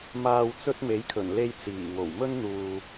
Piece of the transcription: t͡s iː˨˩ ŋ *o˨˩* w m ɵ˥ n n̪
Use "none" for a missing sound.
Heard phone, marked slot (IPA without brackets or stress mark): o˨˩